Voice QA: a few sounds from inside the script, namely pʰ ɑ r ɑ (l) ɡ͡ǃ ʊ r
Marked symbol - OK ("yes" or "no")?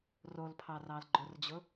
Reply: yes